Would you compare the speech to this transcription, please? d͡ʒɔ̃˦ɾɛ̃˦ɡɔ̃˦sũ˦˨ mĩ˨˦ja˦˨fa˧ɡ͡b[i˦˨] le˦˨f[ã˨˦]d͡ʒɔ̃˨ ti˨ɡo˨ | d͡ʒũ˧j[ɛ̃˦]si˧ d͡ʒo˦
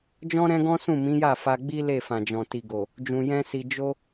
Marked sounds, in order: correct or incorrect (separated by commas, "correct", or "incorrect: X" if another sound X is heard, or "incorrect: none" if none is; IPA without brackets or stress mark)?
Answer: incorrect: i˦, incorrect: ã˨, correct